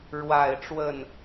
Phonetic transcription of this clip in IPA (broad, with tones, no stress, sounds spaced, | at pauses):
ɻ w a˨˩ ɪ̯ ʈ͡ʂ w ə˥˩ n